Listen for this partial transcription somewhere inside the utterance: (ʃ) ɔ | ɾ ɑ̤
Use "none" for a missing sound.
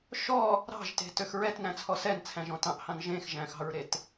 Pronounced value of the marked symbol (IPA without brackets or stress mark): ʃ